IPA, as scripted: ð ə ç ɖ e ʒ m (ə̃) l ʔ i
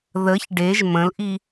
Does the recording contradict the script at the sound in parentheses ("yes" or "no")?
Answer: no